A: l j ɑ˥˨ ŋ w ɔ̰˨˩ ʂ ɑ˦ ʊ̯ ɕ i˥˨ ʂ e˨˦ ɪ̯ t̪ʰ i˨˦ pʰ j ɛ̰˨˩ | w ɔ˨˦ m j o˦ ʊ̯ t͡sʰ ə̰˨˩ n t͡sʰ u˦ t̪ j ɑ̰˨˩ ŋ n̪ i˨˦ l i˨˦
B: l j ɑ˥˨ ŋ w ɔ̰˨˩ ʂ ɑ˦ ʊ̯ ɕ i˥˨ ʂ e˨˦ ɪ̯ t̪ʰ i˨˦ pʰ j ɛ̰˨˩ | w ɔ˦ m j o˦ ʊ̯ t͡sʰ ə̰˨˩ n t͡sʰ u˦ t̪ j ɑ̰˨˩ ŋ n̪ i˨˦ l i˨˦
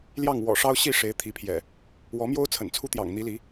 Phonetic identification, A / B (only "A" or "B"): A